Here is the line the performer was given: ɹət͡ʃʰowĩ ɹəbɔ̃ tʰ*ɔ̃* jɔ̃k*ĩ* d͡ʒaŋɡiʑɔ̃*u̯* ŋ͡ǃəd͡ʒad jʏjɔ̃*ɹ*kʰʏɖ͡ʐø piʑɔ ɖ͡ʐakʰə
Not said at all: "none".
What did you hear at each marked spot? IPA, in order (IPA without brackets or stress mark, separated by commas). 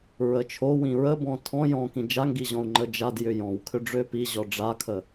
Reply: ɔ̃, ĩ, u̯, w